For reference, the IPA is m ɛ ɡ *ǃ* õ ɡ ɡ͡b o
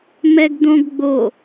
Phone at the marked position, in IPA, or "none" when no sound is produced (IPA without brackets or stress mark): d̪